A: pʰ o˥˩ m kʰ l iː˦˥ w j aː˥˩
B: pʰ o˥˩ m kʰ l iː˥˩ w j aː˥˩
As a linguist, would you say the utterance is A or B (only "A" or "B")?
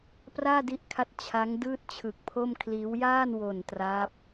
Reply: A